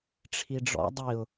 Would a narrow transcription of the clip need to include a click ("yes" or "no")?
no